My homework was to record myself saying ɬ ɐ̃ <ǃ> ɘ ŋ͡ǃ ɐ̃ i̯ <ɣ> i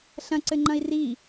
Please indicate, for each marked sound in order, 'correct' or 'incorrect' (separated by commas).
incorrect, incorrect